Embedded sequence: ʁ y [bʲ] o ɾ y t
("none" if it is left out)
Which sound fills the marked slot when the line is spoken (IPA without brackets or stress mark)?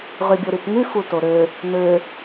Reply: bʲ